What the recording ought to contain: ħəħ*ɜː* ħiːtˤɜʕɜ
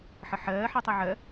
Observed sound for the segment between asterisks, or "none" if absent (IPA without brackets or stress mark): ɜː